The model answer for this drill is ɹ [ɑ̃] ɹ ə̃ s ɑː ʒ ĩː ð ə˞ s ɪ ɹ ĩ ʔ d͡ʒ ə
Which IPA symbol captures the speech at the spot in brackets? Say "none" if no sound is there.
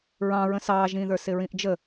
ɑ̃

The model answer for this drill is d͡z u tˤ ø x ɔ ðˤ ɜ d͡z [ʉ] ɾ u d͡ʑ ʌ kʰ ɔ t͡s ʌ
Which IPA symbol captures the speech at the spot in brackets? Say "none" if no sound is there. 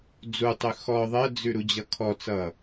ʉ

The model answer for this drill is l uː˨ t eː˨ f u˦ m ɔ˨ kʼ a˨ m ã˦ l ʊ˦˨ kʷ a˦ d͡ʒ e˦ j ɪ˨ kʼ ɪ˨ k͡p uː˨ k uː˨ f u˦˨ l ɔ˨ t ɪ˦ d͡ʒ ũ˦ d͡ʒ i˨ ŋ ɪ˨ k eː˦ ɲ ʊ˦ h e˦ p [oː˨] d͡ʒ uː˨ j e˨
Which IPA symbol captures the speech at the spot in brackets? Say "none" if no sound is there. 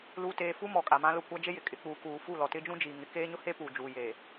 uː˨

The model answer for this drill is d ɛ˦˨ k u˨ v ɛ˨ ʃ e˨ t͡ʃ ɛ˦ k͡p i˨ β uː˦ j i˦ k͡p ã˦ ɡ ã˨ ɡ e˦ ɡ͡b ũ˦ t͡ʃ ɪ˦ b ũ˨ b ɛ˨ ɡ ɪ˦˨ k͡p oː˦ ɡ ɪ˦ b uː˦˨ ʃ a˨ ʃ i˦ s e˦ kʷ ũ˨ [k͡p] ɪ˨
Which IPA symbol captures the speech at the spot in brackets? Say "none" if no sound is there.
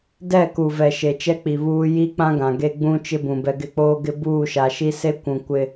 kʷ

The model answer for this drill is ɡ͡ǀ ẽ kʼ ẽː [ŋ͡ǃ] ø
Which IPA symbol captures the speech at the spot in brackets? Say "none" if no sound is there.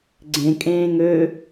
ŋ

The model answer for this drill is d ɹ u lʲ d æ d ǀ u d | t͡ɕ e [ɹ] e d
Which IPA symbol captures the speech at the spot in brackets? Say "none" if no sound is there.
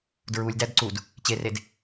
r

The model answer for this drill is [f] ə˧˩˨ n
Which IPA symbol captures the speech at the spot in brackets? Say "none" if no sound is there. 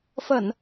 f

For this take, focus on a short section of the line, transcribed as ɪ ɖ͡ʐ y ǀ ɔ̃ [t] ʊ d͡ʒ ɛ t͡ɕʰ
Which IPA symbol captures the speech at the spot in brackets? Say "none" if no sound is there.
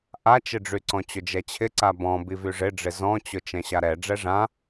t͡ɕ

